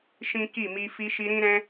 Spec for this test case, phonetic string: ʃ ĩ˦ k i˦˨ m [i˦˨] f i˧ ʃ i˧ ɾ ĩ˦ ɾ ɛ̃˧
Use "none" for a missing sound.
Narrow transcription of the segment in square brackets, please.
i˧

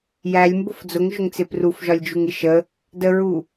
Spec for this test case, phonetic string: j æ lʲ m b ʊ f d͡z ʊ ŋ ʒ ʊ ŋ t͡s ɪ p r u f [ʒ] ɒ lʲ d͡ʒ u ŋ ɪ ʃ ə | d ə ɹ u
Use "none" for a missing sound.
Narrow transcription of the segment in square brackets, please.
ʒ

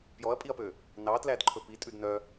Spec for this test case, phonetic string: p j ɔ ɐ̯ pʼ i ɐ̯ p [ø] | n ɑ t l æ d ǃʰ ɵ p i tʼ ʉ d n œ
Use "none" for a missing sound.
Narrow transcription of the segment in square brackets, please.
ø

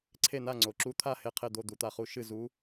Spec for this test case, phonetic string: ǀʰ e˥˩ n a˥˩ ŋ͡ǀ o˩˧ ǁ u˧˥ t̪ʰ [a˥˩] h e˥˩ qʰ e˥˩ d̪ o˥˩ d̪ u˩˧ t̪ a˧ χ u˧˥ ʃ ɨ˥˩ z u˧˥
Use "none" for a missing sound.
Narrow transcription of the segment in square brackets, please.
a˥˩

